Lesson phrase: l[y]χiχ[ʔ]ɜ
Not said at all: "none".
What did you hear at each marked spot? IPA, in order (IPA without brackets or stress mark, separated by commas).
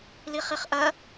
i, ʔ